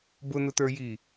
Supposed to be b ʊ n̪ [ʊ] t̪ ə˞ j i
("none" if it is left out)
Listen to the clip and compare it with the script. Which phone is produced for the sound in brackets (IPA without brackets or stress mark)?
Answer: ʊ